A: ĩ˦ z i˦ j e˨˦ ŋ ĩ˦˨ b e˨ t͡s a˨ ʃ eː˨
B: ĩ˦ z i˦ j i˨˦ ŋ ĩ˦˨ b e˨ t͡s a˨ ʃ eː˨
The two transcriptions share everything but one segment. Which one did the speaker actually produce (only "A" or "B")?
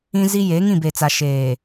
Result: A